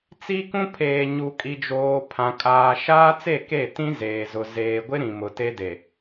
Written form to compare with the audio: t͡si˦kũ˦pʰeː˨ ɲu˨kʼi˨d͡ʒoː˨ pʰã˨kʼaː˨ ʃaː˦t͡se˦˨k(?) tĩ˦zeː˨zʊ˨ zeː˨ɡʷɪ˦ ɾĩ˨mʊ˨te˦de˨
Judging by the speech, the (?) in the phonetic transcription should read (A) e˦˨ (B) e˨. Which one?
A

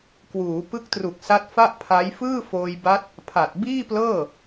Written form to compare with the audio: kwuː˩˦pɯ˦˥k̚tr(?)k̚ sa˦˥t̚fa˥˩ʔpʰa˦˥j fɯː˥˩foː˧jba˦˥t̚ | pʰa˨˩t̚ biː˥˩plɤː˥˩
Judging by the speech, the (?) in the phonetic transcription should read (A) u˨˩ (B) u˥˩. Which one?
A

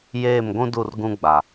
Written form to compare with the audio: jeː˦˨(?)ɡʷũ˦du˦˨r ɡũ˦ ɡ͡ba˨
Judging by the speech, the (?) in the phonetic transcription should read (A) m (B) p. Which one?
A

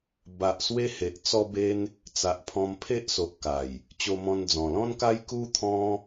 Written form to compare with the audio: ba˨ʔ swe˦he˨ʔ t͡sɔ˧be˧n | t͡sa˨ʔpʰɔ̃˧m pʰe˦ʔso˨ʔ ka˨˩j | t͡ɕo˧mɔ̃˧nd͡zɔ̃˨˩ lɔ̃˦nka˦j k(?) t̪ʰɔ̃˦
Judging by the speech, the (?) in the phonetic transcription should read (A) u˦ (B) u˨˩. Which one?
A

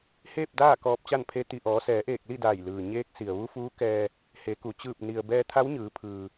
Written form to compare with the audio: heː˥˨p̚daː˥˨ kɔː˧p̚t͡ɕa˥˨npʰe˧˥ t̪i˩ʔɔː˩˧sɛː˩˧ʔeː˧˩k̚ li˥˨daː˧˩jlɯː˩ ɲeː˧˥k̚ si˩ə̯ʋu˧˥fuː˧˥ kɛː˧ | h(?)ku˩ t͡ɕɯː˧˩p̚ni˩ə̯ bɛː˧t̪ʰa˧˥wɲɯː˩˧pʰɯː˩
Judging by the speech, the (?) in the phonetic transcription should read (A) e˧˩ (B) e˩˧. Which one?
B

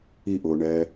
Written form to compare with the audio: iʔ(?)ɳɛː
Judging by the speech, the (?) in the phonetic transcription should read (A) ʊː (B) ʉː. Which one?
A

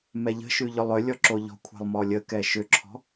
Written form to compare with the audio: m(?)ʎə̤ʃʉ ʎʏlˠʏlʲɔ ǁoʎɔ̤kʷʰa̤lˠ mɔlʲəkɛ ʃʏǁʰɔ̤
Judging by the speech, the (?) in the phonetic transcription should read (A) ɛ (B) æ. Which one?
A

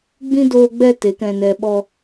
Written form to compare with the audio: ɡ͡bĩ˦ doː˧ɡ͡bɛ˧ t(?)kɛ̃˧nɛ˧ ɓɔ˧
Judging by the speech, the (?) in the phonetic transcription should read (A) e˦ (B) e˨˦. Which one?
B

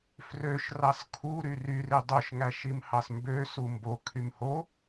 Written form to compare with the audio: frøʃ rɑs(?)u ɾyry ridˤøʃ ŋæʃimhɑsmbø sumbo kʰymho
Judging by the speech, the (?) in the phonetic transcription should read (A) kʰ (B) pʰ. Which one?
A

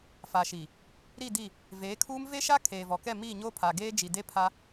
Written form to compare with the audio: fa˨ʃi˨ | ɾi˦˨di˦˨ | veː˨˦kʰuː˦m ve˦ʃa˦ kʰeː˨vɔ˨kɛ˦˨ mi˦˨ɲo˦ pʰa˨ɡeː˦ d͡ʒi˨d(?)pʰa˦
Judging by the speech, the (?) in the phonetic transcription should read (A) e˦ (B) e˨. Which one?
A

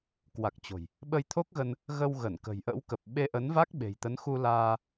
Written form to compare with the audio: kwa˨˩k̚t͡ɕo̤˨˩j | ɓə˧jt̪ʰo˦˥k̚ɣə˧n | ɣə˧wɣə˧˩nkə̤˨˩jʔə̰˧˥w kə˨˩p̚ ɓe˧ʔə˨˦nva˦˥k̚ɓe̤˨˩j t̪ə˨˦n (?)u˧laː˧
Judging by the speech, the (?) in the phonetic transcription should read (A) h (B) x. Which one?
B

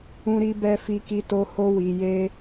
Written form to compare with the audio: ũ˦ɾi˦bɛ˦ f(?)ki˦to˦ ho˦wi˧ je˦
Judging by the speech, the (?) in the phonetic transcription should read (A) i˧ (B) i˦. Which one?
B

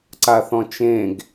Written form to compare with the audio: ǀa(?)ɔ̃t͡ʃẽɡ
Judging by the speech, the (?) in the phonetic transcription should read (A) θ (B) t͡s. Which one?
A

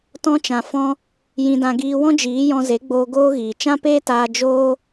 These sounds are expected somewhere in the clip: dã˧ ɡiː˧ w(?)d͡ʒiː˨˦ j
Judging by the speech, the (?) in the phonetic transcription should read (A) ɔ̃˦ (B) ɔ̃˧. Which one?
A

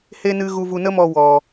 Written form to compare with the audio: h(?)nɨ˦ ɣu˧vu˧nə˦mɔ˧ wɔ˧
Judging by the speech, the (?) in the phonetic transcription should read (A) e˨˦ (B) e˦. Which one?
B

